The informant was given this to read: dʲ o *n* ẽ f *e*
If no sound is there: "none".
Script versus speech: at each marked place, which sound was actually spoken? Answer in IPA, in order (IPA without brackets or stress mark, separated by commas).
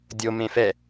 m, ɛ